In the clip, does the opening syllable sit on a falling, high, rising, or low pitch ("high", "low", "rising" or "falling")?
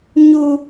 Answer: high